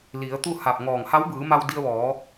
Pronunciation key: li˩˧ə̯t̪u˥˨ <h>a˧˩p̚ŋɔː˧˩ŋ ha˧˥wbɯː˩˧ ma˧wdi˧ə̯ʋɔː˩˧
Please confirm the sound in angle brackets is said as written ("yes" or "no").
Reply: yes